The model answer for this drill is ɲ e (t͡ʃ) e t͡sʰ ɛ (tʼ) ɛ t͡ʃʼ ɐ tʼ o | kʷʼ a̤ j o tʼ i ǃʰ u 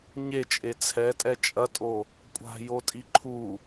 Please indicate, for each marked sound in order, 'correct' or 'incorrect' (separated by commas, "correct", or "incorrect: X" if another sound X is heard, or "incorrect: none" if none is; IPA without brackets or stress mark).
incorrect: t͡ʃʼ, correct